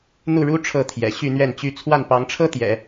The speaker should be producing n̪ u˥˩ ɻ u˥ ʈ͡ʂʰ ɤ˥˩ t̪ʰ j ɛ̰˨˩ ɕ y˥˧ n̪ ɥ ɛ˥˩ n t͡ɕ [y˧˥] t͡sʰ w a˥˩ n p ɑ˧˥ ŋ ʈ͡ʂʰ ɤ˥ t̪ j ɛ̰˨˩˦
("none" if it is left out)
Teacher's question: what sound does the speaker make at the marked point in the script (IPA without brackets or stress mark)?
y˥